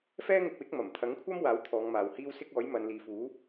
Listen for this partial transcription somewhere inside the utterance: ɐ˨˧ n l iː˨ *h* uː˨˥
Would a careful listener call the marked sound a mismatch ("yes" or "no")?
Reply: yes